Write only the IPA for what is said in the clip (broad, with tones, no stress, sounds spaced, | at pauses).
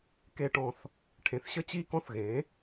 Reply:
k e˨˩ ʈ ɔ̃˨˩ θ | ʈʰ ẽ˨˩ θ ɕ ə˥˨ t͡ɕ i˥˨ k ɔ̃˥ θ ɣ ẽ˩˥